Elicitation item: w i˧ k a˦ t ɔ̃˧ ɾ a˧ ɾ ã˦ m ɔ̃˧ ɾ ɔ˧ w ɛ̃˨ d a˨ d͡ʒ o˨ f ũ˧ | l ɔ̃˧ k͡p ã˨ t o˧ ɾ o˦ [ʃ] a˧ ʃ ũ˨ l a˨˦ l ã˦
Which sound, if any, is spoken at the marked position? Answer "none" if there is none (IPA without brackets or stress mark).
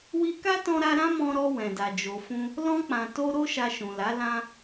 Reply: ʃ